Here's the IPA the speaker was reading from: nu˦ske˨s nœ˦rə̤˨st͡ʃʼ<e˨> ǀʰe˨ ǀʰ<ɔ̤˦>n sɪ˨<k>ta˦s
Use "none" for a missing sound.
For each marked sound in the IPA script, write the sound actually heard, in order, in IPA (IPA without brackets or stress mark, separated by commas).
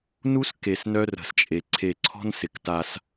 e˨, ɔ̤˦, k